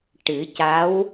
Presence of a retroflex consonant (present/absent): present